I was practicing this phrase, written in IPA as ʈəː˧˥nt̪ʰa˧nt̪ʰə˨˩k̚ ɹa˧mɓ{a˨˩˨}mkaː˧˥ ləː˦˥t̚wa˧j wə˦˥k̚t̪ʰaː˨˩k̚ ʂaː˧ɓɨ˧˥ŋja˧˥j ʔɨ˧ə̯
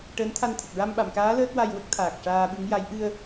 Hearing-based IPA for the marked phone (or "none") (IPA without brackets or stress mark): a˨˩˨